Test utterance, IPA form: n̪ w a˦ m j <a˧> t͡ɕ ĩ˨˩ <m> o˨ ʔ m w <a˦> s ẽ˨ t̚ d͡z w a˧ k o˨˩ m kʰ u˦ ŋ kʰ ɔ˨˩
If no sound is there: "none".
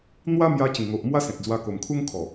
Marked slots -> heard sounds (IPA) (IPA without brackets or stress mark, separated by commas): a˧, ŋ, a˦